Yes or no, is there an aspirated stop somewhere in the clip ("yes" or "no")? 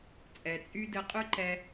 no